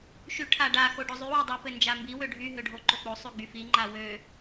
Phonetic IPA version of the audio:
ʃyʈʰaɖa xoɖozˤy wodˤy pɘnd͡ʒambi wøɖʱy ɦøɖʱoǃok͡po sˤyɡ͡byfi ŋ͡ǃawø

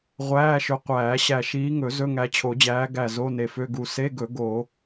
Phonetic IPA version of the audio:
ʁʷæː˧˥˧ʃɵ˨˦ qʷæː˨˩˦ɕæ˧˩ ʃiː˨˦ŋɵ˨˩˦ zɵ˧˥˧ŋæ˨˦t͡ɕʰo˨˩˦d͡ʑæː˨˦ ɡæ˧˩ zo˧˥˧ne˧˩fø˧˥˧ɡu˧˩ se˧˥˧ɡɵ˨˩˦ ɡo˨˩˦

